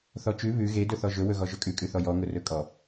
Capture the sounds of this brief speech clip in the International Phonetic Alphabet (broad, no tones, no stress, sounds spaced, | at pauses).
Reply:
θ ɔ t͡ʃ ʉ β ʉ ɣ e d ɵ θ ɔ ʒ ɵ w ɵ ɣ ɔ ʒ ɵ kʼ ʉ kʼ ʉ θ ɔ j ɔ ŋ ʊ r ɵ kʼ ɔ